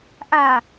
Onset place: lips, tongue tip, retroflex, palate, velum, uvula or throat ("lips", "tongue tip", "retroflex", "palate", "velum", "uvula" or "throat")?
throat